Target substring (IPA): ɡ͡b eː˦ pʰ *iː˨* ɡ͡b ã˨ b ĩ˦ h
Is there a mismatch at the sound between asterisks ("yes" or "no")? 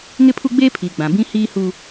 no